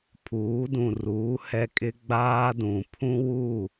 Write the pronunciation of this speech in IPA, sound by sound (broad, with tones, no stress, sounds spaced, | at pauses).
pʰ uː˨˦ d ũ˨ r uː˨˦ h ɛ˦ kʼ ɪ˦ ɡ͡b aː˦ d ũ˨ pʰ ũ˦ w u˦˨